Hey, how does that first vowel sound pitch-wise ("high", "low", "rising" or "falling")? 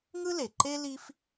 high